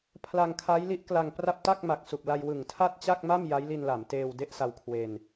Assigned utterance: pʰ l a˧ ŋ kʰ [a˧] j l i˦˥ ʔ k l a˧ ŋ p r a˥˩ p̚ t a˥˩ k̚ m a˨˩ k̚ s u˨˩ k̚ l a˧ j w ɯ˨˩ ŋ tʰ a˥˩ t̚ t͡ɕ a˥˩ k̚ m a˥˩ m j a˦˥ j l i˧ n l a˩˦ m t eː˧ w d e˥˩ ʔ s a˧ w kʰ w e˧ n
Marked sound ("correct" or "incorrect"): incorrect